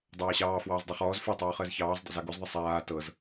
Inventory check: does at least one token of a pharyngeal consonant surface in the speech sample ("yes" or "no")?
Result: no